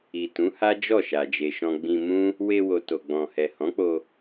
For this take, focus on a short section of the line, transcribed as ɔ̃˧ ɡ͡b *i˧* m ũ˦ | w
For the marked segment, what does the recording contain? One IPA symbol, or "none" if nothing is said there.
ĩ˧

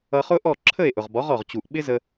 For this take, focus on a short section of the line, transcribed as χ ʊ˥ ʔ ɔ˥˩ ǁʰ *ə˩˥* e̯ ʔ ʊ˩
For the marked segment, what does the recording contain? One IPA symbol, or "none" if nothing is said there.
ə˥˩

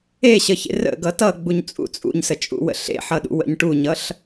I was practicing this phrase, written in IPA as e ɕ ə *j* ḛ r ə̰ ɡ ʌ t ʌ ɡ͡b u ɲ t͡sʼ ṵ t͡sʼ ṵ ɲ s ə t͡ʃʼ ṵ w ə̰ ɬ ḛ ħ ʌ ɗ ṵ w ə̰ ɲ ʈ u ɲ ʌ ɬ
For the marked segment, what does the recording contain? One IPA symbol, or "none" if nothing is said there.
ç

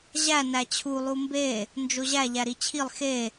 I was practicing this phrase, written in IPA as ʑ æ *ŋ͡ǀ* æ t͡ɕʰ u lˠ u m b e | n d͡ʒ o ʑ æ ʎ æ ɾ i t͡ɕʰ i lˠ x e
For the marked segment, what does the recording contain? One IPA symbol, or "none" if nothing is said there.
n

